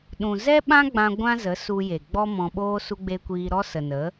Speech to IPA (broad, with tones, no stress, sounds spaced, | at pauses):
ɗ ũ˨ z ɛ˦ ɓ ã˦ ɡ͡b ã˧ ɡʷ ã˦ z ə˨˦ s u˧ j e˨ ɡ͡b ɔ˦ m ɔ̃˧ ɓ oː˦ s u˦ ɡ͡b e˦ kʷ iː˧ ɾ ɔ˦ s ə˨ n ə˨˦